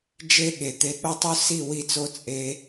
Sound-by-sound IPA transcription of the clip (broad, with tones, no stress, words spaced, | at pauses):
d͡ʒe˦ ɠe˨t̪e˧ ɠo˦tˤu˦ si˦˨ wi˦˨t͡so˦ t͡sʼe˧